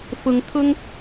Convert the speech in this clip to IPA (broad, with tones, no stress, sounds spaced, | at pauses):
f ʊ˨˦ ŋ t̪ʰ ʊ˦ ŋ